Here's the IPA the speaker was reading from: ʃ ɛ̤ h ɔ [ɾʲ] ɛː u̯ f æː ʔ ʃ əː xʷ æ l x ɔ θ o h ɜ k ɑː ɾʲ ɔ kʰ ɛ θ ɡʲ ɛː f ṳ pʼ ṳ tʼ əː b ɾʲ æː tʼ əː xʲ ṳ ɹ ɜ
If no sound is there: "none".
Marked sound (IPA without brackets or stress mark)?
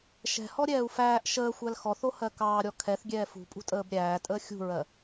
ɾʲ